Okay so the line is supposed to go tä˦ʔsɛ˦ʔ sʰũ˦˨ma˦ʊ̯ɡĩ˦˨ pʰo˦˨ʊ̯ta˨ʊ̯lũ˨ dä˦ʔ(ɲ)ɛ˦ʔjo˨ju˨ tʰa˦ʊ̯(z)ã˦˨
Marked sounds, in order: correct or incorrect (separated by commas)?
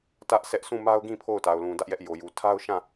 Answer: incorrect, incorrect